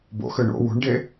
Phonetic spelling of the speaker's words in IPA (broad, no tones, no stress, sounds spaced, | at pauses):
b o̰ x ø ɳ o̰ w ṳ ɳ ɖ e